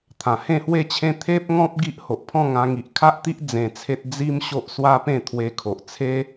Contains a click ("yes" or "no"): no